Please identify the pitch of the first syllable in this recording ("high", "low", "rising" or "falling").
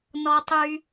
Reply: low